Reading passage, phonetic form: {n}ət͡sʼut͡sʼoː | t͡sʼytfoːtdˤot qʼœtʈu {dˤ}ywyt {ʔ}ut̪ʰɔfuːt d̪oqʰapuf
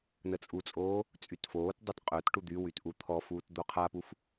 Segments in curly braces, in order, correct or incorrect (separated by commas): correct, incorrect, correct